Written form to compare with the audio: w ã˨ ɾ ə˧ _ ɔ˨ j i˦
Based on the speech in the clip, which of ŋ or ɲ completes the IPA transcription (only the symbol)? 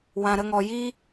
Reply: ŋ